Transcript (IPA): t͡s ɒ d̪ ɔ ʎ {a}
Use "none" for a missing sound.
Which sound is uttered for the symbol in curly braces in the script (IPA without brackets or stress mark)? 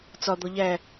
æ